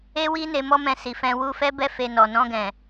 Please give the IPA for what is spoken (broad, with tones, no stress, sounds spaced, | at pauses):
e˦ w i˦ n e˧ m ɔ˦ m ɛ̃˧ s i˨ f ɛ̃˧ w u˧ f ɛ˦ b ɛ˦ f e˧ n ɔ˨ n ɔ̃˧ ɡ ɛ̃˨